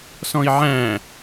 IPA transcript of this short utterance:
s ɔ̃ i̯ ʕ æ̃

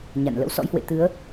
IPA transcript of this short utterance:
ɲ a̰˧˨ n l ə̰˧˥ w s ɔ̰˧˥ j h w ḛ˧˨ t̪ ɨ˨˦ ə̯

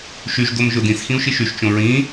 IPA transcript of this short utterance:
ʃ y ʒ d o m ʒ ʊ d ĩ s x ĩ u̯ ʃ i ʃ y ʃ t͡ʃ õ ɹ ĩ

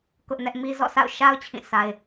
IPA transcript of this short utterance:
k ʊ˦ ʔ n ɛ˦ ʔ m i˦ z ɔ̰˦˨ s a̰˦˨ ʊ̯ ʃ a˦ ʊ̯ t͡ɕʰ ĩ˦˨ sʰ a˦ ɪ̯

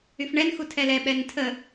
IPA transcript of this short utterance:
y f ɳ ɛ n x u tʰ ɛ l ɛ ɓ ɛ n tʰ ə

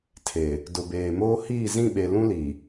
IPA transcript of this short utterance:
tʰ e˨ | d ʊ˨ b eː˨ m oː˦ h iː˦˨ z ĩ˦˨ ɓ e˨ l ũ˦ l i˨

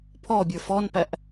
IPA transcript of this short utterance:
pʰ ɔ bʲ ə˞ f ɔ n p æ ʔ

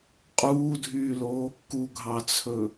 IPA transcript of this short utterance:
qʼ uː dʱ yː l o | k u ɡʱ ɑ t͡sʰ ɵ

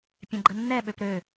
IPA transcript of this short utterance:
pʲ ɛ̃ ɡ͡ǃ ə nː ɛ ɓ ø p ɾ ø

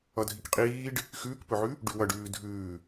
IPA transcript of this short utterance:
ʌ dʱ i k qʼ iː ɖ | x ʉː k p ɵ ʕ ʉ | ɖ ʉ w ʌ ɖ ʉː dʱ ʉː

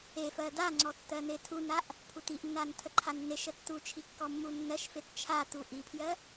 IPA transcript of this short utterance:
e f ɜ d a ŋ͡ǀ ɔ tː ɜ n̪ e tʰ u n a ʔ | pʰ u t i ʔ nː a n tʰ ə ǃʰ a nː e ʃ ə tː u t͡ʃʰ i kː ɔ mː u nː ɜ ʃ f e t t͡ʃʰ a t u ʔ i pʰ j ɜ

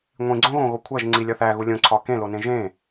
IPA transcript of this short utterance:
ŋʷ ĩ ɡ͡ǀ õ ɣ õ ɣ o kʷʰ æ ʒ ŋ͡ǀ i lʲ ɒ θ æ ɣ u lʲ õ ǀʰ ɒ k ẽ l o n ẽ ʒ ẽ

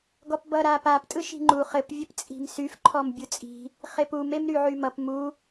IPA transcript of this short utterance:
ɡ ɔ p b ʌ ɾ a p a p tʼ ɯ ʃ i̤ ŋ͡ǃ u χ ɘ p vʲ ɘ p t͡sʼ i̤ m s y f ǃʰ ɔ m bʲ u t͡sʼ i̤ | χ e p u m e m ɾ y ʕ y m ʌ p m u

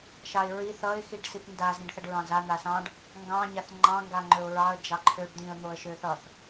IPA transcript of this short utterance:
ʃ ɑ ɪ̯ ɹ i θ ʌ ɪ̯ x i ɖ s i p n d a z ĩ ɖ θ ʌ ɖ ɹ ɑ̃ z a n̪ a s ɑ̃ ɖ | ŋ ɡ ɑ̃ ɲ a θ ŋ͡ǃ ɑ̃ ŋ ɡ a ŋ͡ǃ ø ʊ̯ ɹ ɑ ə̯ d͡ʒ ɑ ǃʰ ø ɖ d̪ ĩ ə̯ n̪ o ə̯ ʃ ø θ ʌ θ

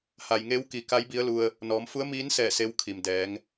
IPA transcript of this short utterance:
h a˩ j ŋ e˧˥ w k i˩˧ k a˧˥ j b i˧˥ ə̯ l u˧ ə̯ | n ɔː˩˧ m f u˧˥ ə̯ m iː˧˥ n s ɛː˧˩ s e˧˥ w kʰ i˩ m d ɛː˩˧ ŋ

